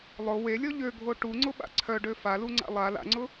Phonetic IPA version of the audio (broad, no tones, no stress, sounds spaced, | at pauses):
lˠ ʊ w e lʲ ɔ ʎ ø ɡʱ o ʈ u ŋ͡ǀ ʊ ɓ a̰ ǀʰ œ ɖ ø f a l u ŋ͡ǀ a̰ lˠ a l a̰ ŋ͡ǀ ʊ